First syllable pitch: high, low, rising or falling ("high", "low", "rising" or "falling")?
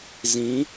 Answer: rising